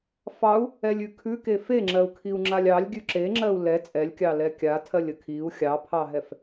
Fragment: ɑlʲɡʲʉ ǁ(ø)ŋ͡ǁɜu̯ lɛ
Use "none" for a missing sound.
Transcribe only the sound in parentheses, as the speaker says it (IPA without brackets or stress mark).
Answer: e